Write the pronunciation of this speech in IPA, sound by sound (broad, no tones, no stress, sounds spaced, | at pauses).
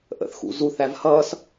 ʔ ə̰ θ x ṵ z u θ æ v h ʌ s